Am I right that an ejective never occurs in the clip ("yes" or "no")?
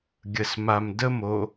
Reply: yes